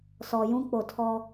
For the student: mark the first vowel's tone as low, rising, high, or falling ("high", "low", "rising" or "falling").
low